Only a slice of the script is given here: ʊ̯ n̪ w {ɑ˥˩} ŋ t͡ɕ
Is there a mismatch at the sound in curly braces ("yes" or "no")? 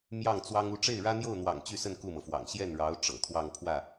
yes